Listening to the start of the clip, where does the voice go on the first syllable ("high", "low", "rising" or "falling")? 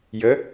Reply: rising